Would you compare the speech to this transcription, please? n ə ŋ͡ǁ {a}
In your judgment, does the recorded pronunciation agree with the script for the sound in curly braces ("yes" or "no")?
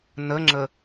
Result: no